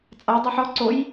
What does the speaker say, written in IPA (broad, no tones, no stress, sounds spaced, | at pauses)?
t͡sʼ a dˤ e ħ ɔ ǀ o j